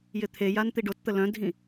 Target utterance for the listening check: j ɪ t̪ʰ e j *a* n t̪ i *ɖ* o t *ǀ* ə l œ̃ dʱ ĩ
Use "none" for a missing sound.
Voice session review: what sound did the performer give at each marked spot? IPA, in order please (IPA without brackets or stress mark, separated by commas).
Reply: a, ɖ, t̪